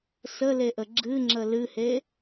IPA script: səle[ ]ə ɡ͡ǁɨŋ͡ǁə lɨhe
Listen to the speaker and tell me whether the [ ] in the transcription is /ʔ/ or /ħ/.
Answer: ʔ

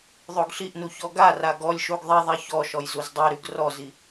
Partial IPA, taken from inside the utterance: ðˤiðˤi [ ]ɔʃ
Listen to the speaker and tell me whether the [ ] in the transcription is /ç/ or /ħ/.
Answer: ç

